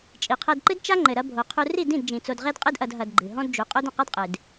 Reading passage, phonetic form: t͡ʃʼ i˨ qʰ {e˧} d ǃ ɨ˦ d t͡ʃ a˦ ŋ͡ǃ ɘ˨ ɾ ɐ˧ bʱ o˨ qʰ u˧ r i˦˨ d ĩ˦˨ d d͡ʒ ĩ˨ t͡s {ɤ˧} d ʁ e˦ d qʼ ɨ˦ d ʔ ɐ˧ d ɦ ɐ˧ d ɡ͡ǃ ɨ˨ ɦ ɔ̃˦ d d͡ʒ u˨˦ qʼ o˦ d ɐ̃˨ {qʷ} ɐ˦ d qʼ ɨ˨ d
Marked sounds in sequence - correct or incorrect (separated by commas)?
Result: incorrect, incorrect, incorrect